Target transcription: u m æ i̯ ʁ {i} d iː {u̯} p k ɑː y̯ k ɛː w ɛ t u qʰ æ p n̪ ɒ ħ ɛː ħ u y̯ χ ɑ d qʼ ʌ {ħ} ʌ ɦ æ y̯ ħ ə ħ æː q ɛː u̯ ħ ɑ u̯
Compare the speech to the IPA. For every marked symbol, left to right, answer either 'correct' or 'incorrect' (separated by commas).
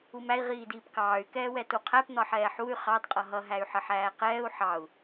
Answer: incorrect, incorrect, incorrect